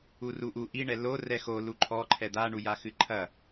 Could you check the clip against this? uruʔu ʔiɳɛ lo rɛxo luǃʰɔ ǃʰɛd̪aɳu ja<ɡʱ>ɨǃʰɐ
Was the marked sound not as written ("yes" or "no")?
yes